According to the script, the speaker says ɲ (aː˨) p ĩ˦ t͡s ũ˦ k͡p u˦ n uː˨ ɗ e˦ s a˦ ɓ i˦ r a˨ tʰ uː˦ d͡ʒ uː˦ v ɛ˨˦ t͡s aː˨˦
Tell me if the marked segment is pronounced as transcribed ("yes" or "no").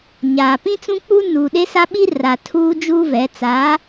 yes